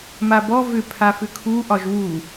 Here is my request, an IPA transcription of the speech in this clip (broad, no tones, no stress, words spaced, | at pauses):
mabɔ vʏpʰafʏ kʰuʔɒʒ wu